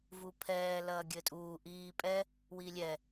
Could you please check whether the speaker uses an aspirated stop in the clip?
yes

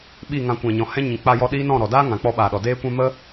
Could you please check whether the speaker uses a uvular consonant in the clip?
no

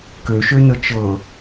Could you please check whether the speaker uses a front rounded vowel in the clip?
yes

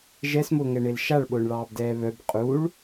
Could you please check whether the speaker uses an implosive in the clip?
yes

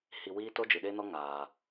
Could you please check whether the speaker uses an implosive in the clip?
yes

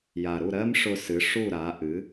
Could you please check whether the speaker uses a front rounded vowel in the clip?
no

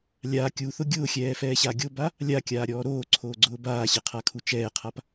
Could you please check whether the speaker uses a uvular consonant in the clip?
yes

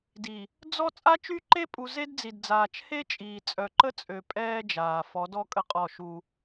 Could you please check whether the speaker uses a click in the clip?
yes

